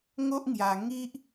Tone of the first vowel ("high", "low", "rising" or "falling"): high